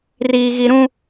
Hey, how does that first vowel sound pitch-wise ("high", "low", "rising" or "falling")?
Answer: high